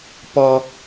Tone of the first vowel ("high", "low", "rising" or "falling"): low